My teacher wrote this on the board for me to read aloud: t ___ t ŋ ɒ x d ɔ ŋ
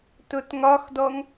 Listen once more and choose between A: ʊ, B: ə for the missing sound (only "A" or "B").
A